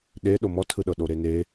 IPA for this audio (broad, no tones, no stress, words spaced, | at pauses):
ɗe ɗomɔtʰɯɗɤ ɗoɾene